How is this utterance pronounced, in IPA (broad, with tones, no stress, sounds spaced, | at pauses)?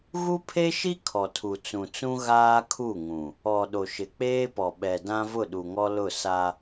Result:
ɣ u˦ pʰ e˦ ʃ i˦ kʰ ɔ˨ tʰ u˨ t͡s ũ˨ t͡s ũ˦ ɣ aː˦ kʰ u˦˨ ŋ ũ˨ | ɔ˨ ɗ o˨ ʃ ɪ˨ k͡p eː˦ p ɔ˨ ɓ ɛ˨ d ã˦ v ʊ˦˨ ɗ u˨ ŋ ɔ˦ l ʊ˦˨ s a˦